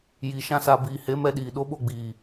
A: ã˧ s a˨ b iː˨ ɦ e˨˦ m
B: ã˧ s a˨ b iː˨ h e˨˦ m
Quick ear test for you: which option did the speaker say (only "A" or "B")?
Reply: B